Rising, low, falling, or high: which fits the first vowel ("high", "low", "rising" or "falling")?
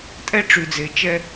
high